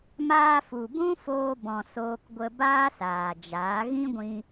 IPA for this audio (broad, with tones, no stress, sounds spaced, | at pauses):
m aː˧ f u˨ b ũ˦ f oː˧ b ɔ̃˨ s oː˧ k ɡʷ ə˧ b aː˦ s aː˨ d͡ʒ aː˨˦ ɣ ĩ˦ ɡʷ ĩ˧